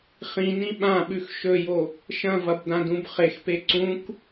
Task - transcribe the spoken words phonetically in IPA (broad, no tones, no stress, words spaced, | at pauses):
χĩnĩ ɓãɓʉx ʃɵjo | ʃɐ̃vɐbdãdũb χexpe ǀũk